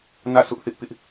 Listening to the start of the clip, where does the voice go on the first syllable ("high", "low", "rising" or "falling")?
falling